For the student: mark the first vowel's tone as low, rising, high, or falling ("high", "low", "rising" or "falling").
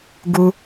high